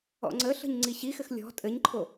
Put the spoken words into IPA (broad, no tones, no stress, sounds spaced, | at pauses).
ɔ̰ ŋ͡ǀ ə ɬ ə̤ ɲ ŋ͡ǀ i ɕ i x ɘ x lʲ ɔ̤ tʼ ɘ ɲ ǃʰ o